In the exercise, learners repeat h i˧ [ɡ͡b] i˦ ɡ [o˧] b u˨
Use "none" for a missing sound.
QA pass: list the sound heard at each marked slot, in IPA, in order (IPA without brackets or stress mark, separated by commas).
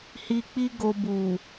k͡p, o˧